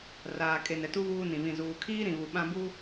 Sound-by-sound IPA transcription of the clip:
r aː˨ kʼ e˨ n ɛ˨ t u˦ β uː˦ n ĩ˨ β ĩ˦˨ z uː˨ kʰ iː˦ ɾ ĩ˨ β u˨ ɓ ã˦ b u˦

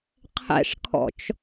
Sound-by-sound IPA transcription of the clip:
qʰ ɛ̰ ʂ kʰ ɔ̰ t͡ʃ

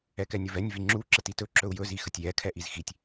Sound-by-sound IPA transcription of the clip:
ɛ k ɛ nʲ ɵ v ɛ nʲ v i ŋ͡ǁ u ǁ ə t i t ɵ ǁ ɵ u̯ j ɵ z i x ə tʲ j ɛ kʰ ɛ ʔ i z x i tʲ

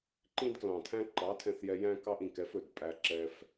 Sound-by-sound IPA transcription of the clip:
ǃ ĩ˦ d k l ɑ̃˨ tʰ æ̃˦ ǃ ɑ˨˦ tʰ ɛ̃˧ θ j ɛ˧ j æ̃˦ k ɑ˦ ʔ ĩ˨ k ɛ˦ f ɵ˨ d pʼ æ˧ ǁ ɛ˧ f

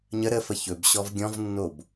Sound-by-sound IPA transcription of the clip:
ɲ ə ɾ ə f ə ç ɵ b ɕ ɔ v ɡʲ ɔ̃ v nː o b

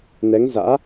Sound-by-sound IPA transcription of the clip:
n ɛ˨˦ ŋ z a̰ː˧˥

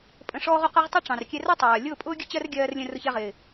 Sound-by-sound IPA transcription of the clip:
pʼ ə̃˧ ʂ ɔː˦ ʁ ʊ˧ q ɜ˦ ʁ tˤ ʌ˦ ʈ͡ʂ ɑ̃˨ r kʲ ɛ˧ r ʌ˦ tˤ ɜː˨ lʲ ʊː˦˨ pʼ ʊː˦ ɡʲ ə˦ t͡ɕ ɜ˦ r ɡʲ ɜː˧ r lʲ ə̃˧ r ʊ˧ ç ɛ˧ ʁ ɪː˨

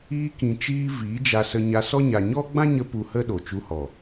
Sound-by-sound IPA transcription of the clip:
iː˧ k ĩ˨ t͡ʃ iː˧ v iː˨˦ d͡ʒ a˧ s ə˧ ɲ a˧ s ɔ˦ ɲ a˨ ɲ ɔ˦ ɡ͡b ã˦ ɲ ə˧ p u˧ h ə˦ ɗ o˨ t͡ʃ u˧ h ɔ˨

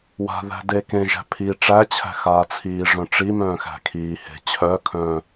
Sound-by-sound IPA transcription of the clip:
w a̤ ð æ̤ d e k ẽ ʒ æ̤ pʰ i ʈ͡ʂ æ t͡ɕʰ æ̤ x aː t͡sʰ iː ʐ œ̃ ʈ͡ʂ i m œ̃ː x æ̤ kʰ iː h e̤ t͡ɕʰ œ kʰ œ̃ː

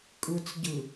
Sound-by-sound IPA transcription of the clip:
kʼ ɯ t͡s ɟ ɯ

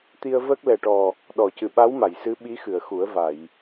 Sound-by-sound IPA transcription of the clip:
t̪ i˧ ə̯ v ə˦˥ k̚ l ɛ˨˩ ʈ ɔ˨˩ | ɗ ɔ˨˩˨ c ɨ˨˩ ɓ a˧˥ w m a˨˩˨ j s ɨ˧˥ ɓ i˧˥ x ɨ˨˩˨ ə̯ x u˨˩˦ ə̯ v a˨˩˨ j

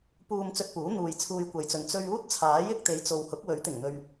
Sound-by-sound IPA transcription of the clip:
p uː˧ m t͡s ɵ˧ t̚ p uː˨˥ n̪ uː˨ j t͡sʰ uː˧ j kʷ ɐ˨ j t͡s ɵ˨ n t͡s ɵ˧ ɥ uː˥ t̚ t͡sʰ aː˨˥ j ɪ˧ k̚ t̪ e˨˧ j t͡s o˨ w h ʊ˨˥ k̚ w ɵ˨˥ ɥ t̪ ɪ˨˩ ŋ n̪ ɵ˨ ɥ

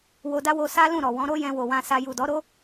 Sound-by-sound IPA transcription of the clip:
w o˧ d a˦ w o˧ s a˦ l ũ˦˨ ɾ ɔ˨ w ɔ̃˨˦ ɾ o˦ j ɛ̃˧ w o˨ w ã˧ s a˧ j u˨ d ɔ˨˦ ɾ o˦

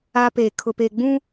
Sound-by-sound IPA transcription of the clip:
a˦ p e˨ kʰ ʊ˨ p e˨ ɡ͡b ũ˦

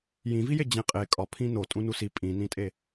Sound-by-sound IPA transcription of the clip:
j ĩ v i j e d͡ʑ ẽ qʼ e kʼ ɒ pʰ ĩ n o tʼ ũ n u s i pʼ ĩ n ĩ tʼ e

